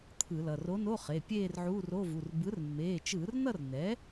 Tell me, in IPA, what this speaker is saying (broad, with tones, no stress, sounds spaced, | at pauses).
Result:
t̪ʰ ɯ˧˩˧ l ʌ˩˧˩ r o˧˥ n o˧˥˧ χ e˩˧˩ pʲ eː˥˧ r ʕ u˧˥˧ r o˧˥˧ v u˩˧˩ r b ɯ˩˥ r mː eː˩˧˩ t͡ʃ ɯː˧˩˧ r n ʌ˥˧ r n ɛ˩˥